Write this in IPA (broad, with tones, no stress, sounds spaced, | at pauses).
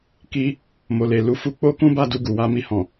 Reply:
k i˧ | m o˨ l e˨ l u˧ f u˧ k͡p o˦ k ũ˦ b a˦ d u˧ ɡ u˨ w a˧ m i˧ h ɔ̃˨